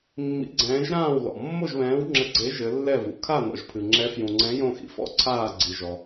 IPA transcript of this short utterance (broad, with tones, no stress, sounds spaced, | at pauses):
mː ḭ˧˥ ɡ͡ǀ ɛ̃ː˧˥ ʒ ɾ ãː˥˧ w l ɔ̰˨ mː o˥˧ ʒ β ɛ̃ː˧˥ w ŋ͡ǁ ɘ˧˥ ɡ͡ǀ e˧˥ ʒ ɘ˧˥ lː ɛ˥˧ v ṵ˨ kʰ a˥˧ n ɔ̰˨ ʒ pʰ ɨ˨ ŋ͡ǁ ɛ˧˥ f j ũ˨ ŋ͡ǀ ɛ̃˧˥ j õ˥˧ x ḭ˧˥ f ɔ̰˥˧ ǀʰ aː˥˧ ɡ͡ǀ i˨ ʒ ɔ˨